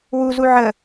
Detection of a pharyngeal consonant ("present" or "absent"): present